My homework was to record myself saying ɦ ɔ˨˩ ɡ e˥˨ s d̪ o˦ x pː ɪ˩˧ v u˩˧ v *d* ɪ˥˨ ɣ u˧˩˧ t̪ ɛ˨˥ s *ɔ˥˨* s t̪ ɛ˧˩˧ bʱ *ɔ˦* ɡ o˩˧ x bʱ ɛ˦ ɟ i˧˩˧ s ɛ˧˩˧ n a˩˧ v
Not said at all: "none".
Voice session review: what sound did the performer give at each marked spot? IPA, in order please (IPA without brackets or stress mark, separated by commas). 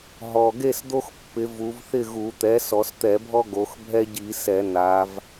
θ, ɔ˩˧, ɔ˦